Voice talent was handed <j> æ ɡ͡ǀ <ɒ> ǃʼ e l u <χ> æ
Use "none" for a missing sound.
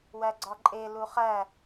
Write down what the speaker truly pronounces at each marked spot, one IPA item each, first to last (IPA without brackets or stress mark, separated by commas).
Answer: w, ɒ, χ